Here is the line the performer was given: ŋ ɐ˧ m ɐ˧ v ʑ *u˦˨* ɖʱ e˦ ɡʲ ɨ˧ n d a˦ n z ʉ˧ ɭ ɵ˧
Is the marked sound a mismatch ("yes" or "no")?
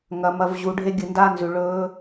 yes